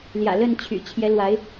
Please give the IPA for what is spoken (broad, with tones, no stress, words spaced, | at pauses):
ljä̰˨˩ lə˥˨nt͡ɕʰy̰˨˩ t͡ɕʰjɛ˨˦lwa˨˦ɪ̯